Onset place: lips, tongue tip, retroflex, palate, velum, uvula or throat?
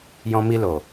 palate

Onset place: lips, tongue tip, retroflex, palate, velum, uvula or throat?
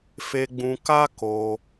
lips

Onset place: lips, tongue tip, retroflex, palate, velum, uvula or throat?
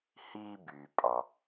throat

